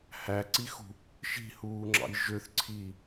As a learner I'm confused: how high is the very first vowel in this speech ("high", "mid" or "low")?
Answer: low